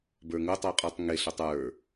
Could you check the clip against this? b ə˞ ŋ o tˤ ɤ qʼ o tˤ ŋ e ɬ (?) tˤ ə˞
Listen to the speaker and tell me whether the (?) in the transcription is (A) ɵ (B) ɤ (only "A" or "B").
A